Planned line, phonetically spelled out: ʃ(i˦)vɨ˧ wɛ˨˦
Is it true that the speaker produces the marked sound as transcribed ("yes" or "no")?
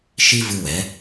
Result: yes